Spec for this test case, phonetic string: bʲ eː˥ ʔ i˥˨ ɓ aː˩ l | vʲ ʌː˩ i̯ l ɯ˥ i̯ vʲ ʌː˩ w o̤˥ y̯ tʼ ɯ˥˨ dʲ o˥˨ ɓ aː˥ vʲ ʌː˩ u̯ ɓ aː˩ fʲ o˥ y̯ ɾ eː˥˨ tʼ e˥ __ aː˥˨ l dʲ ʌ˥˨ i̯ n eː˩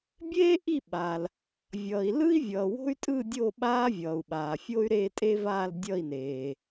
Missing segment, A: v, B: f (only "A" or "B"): A